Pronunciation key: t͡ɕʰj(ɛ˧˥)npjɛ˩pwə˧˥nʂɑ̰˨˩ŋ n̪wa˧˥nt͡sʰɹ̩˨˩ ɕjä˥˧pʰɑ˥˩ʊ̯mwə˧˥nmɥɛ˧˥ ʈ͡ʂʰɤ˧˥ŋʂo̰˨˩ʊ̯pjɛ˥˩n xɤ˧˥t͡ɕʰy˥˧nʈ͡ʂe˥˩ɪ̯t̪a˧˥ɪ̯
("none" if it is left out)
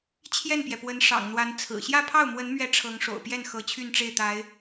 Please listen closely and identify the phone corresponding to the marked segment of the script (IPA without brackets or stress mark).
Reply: ɛ˥˩